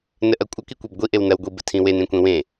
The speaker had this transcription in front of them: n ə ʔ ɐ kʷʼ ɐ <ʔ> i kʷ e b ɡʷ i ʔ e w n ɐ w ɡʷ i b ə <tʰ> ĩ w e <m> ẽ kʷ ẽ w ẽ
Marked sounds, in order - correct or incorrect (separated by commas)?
incorrect, correct, incorrect